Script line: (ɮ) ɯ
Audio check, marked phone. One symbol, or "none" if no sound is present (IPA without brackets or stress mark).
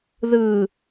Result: ð